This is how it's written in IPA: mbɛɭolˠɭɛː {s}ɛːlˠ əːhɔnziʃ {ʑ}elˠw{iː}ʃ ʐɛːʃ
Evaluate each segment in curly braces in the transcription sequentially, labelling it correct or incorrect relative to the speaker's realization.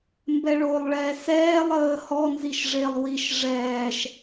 correct, incorrect: ʐ, incorrect: i

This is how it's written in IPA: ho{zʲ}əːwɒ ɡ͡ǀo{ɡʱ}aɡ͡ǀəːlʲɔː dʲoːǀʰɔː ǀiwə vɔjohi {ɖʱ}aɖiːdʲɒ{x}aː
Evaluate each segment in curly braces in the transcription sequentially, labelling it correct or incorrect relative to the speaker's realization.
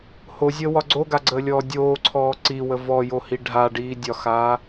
correct, incorrect: ɡ, correct, correct

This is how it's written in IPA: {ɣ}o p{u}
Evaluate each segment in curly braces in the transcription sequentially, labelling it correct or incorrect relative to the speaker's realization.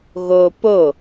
correct, incorrect: o

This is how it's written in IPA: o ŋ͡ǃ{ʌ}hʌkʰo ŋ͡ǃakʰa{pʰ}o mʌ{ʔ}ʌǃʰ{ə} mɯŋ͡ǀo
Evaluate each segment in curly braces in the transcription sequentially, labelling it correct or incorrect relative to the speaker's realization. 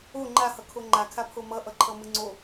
incorrect: a, correct, correct, incorrect: ʌ

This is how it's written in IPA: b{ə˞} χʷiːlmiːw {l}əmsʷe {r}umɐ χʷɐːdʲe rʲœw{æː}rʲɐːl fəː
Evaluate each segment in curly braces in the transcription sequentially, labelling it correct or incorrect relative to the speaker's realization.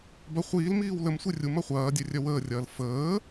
incorrect: ɐ, correct, incorrect: rʲ, incorrect: əː

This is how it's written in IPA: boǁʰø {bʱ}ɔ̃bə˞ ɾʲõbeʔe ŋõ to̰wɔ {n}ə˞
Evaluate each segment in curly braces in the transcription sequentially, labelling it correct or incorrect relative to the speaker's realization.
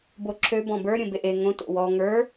incorrect: b, incorrect: ŋ

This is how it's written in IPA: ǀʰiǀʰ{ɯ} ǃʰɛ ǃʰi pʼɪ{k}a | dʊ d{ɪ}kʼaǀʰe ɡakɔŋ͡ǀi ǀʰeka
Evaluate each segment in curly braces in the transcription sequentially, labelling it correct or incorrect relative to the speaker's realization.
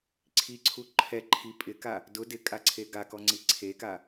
incorrect: u, correct, correct

